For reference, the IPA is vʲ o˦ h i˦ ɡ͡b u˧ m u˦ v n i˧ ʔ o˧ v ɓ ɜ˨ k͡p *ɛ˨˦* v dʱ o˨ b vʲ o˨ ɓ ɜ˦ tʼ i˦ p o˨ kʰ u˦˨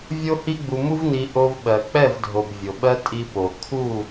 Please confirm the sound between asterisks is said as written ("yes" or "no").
no